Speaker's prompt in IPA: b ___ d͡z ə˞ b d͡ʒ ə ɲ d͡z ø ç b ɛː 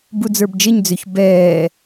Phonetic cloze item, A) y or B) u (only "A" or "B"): B